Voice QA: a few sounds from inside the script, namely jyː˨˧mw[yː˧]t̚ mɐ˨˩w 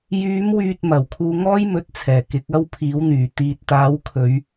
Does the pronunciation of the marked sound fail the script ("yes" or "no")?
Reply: yes